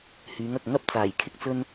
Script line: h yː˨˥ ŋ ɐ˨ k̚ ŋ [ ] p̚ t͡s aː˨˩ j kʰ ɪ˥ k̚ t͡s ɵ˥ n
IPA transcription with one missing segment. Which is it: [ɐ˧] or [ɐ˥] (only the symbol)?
ɐ˥